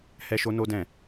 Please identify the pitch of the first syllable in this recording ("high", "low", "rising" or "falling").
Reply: high